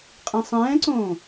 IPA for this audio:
qʼ ĩ sˤ ɛ̃ː ǀ õː

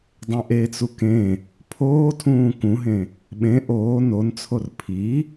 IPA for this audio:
dˤ ẽ ʔ e t͡s u k ẽ | pʰ oː tʰ ũː k ũ ɦ ẽ | ɓ ẽ ʔ oː n o n t͡sʰ o r pʰ i

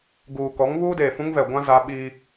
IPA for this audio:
ɡ uː˨ k ɔ˨˦ ŋ β uː˦ d eː˨ f ũ˦ ŋ v ɛ˨ ɡʷ ã˦ z a˦ ɓ i˦

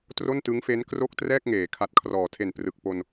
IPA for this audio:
t r o˥˩ n t ɯ˦˥ ŋ f e˦˥ n k r o˥˩ k̚ t r ɛː˥˩ k̚ ŋ eː˩˦ kʰ a˨˩ t̚ kʰ r ɔː˩˦ tʰ e˨˩ n p r ɯ˨˩ k̚ p o˧ n

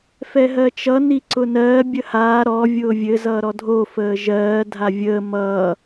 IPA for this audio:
f ɛ ɦ ɜ t͡ʃ ʌ n i ǀ ʊ n ɜː bʲ ə h aː ɾ ɔ vʲ ʊː vʲ ɘ z ʌː ɾ ɔ dʱ o f əː ʒ ɜː dʱ a vʲ əː m ʌː

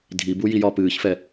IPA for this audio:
dʱ i b u j i j ɒː p ɨː ç f ɛ

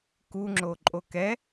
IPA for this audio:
k u ŋ͡ǁ o ǃʼ o k ɛ

